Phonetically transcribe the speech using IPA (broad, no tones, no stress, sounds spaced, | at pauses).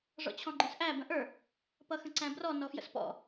ʐ ɔ̰ t͡ɕʰ ɔ̃ ɡ͡ǃ ə̃ s ʔ æ b ə̃ ʔ ə˞ | p ʌ x ə̃ ǀ æ̃ b r ɔ n ɔ f j ə̰ s p ɔ̰